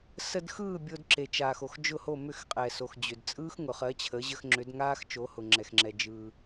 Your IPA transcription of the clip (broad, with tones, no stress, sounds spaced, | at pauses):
s ə˧ d x ɯː˥˩ bʲ o˧ d ǁ e˩ t͡ʃ aː˩ x o˩ x d͡ʒ ʊ˥˩ h o˥˩ m ʏ˥˩ x qʼ ɛ˩ s o˩ x d͡ʑ ʏ˩ d t͡sʼ ɯː˥ x ŋ ʊ˩ χ ɜ˩˥ t͡ɕʰ ə˩˥ ʑ ə˧ x ŋ͡ǁ ʏ˩˥ d ŋ aː˥ x t͡ʃ o˩˥ h ʊ˩ ŋ͡ǁ ɛ˩ x ŋ͡ǁ ɛ˩ d͡ʒ ɯː˩